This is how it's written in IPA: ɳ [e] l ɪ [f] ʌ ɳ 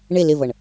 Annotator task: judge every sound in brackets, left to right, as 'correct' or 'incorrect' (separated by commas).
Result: correct, incorrect